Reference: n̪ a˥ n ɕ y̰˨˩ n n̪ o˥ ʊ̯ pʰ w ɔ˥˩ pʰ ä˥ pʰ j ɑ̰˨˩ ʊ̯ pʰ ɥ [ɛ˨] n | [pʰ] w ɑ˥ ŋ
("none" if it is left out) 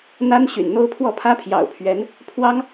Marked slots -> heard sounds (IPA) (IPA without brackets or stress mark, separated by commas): ɛ˧˥, pʰ